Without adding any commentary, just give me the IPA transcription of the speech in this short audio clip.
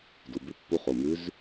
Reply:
d u˩˧˩ b ʉ˧˥ pː u˧˥ χ o˩˧˩ m ʉ˧˥ z

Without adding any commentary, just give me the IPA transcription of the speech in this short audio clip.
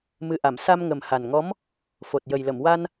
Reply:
m ɨ˨˩ ʔ a˨˩˨ m s a˧ m ŋ ə˨˩ m h a˨˩ n ŋ ɔ˧˥ m | f o˨˩ t̚ j ə˨˩ j l ə˨˩˨ m w a˧ n

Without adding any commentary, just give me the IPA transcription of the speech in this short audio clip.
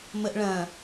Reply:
m ə ʔ ɭ ɐ̃

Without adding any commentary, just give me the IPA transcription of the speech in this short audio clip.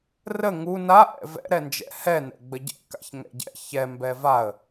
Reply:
r ə ŋ u n a ʔ ɛ̰ v ɛ̰ ɾ ɛ n d͡ʒ ɛ̰ h ɛ n ɛ̰ ɡ͡b ə ɟ ɛ̰ k a̰ ç ŋ ɛ̰ ɟ ɛ̰ ç ɛ m b ɛ v a ə̯

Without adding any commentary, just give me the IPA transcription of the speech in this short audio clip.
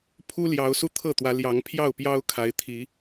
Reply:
pʰ u˦ l j ɑ˨˦ ʊ̯ s u˧ t̪ʰ ɤ˥˨ t̪ w ä˨˦ l j ɑ˨˦ ŋ pʰ j ɑ˥˨ ʊ̯ p j ɑ˦ ʊ̯ kʰ a˨˦ ɪ̯ t̪ʰ i˨˦

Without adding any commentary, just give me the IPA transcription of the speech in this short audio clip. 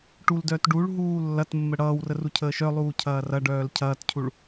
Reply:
ʈ u l d œː t ɖ u ɭ ɦ uː lː ɐ t mː ə ɽ ʌː w r ə r u cʰ əː ʃ œ lˠ uː cʰ ɐː r ɐ ɖ œː l cʰ ɐː t cʰ u ɭ

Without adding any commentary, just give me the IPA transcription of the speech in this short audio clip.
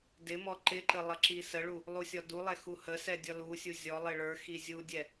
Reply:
d ɪ m ɔ ǃ ɪ ǃ ə lˠ ʌ ǁ i s ə ɭ u | lˠ u sʲ ɔ d u lˠ ɛ x u h ə s ɛ dʲ ɔ l u sʲ u zʲ ɔ lˠ ɪ ɭ ə˞ x i zʲ u dʲ ɛ

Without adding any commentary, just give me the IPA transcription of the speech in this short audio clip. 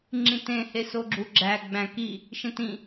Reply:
ŋ͡ǁ ĩ t ẽ h e s o ɡ͡ǁ u ɡ͡ǁ æ ɡ͡b æ̃ k i | ʃ ẽ t ĩ

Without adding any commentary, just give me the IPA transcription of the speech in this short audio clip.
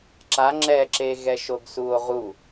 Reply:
ǁ a ŋ͡ǁ ɛ ǁ e ɣ ɛ ʃ o ɡ s u o̯ ʁ u

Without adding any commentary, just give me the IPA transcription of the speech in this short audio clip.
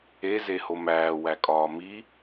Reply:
e z e h o m æː w æ kʼ ɒː m i

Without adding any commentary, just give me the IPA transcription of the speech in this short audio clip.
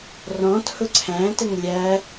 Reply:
r ɔ̃ t h ʊ ǀʰ æ̃ t ə ŋ lʲ æ

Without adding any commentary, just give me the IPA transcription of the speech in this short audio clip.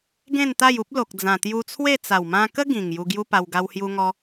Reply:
ɡ ẽ˥˧ n t̪ a˥˧ j u˦ p̚ l o˨ k̚ d͡z ã˨˩ t̪ j u˧ t͡sʰ w e˥˧ t͡s a˨˩ w m ã˧ k ə˦ ɡ ĩ˨˩ ŋ j u˧ ɡ j u˦ p a˧ w ɡ a˧ w h j u˧ ŋ ɔ˧

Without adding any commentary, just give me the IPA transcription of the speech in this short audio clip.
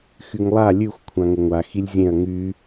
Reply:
x y ŋ lˠ a lʲ ʉ xʷ kʷʰ ã ŋ ə ŋʷ a x i lʲ zʲ ẽ ɐ̯ ŋ y

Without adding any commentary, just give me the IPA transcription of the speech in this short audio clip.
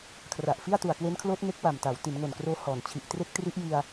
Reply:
kʰ r a˨˩ ʔ f i˥˩ a̯ t u˨˩ a̯ k w e˦˥ n kʰ l oː˦˥ t̚ ŋ e˦˥ k̚ w a˨˩ m t a˩˦ w t i˩˦ n ŋ o˨˩ n k r oː˧ h ɔː˨˩ n t͡ɕʰ i˨˩ ʔ t r e˥˩ k̚ t r i˦˥ ʔ j i˧ a̯

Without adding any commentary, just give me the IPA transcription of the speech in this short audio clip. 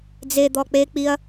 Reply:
d͡z e d̪ ɔ k͡p e k͡p i ɐ̯

